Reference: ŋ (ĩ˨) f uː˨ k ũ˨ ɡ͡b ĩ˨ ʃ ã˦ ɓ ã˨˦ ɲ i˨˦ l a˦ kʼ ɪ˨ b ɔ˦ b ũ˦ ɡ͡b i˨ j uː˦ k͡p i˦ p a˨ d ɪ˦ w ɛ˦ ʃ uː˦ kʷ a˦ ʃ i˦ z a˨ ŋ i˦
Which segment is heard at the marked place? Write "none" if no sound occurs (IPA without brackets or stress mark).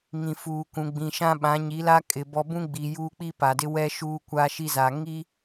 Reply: ĩ˨